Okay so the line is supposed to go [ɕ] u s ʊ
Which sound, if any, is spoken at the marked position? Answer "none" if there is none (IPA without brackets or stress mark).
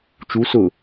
t͡ʃ